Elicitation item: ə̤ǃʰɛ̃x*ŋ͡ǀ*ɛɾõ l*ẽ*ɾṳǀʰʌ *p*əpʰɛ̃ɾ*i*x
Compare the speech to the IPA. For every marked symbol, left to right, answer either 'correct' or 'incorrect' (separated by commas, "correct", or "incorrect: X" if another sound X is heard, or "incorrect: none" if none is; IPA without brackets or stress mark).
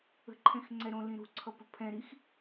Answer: correct, incorrect: ĩ, correct, correct